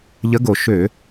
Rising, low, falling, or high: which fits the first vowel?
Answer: rising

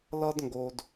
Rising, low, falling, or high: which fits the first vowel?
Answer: high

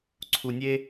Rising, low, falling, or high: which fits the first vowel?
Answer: low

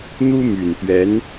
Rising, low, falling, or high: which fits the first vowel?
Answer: high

